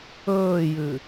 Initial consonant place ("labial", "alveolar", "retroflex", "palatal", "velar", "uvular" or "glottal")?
palatal